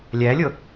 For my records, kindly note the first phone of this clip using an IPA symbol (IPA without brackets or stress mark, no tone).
lʲ